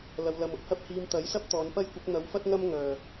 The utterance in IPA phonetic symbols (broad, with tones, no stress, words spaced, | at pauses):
lɐ˧wlɐ˧mʊ˥k̚hɐ˥p̚ hiː˧mt̪ɐ˨˥j sɐ˥p̚t̪ɔː˨˧npɐ˥jkʷɪ˨˥k̚ n̪ɐ˨˧wfɐ˥t̚ ŋɐ˥m ŋœː˨˩